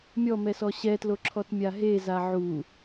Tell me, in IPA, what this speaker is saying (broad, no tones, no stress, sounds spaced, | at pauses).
mʲ ɔ m ɛ s ɔ ɕ ɛ t l o ǁʰ ɔ t mʲ a ɦ e z a ʕ u